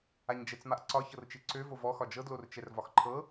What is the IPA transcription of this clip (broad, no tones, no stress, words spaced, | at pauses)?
aɲd͡ʒɛt͡smaʔǀɒ çɤrt͡ʃeǀø vovɔ xɒd͡ʒɤ dlort͡ʃɛrvɒxǃʰɤ